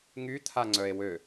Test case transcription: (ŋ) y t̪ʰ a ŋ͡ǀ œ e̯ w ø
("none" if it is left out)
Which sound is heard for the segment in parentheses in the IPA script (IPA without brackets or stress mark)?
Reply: ŋ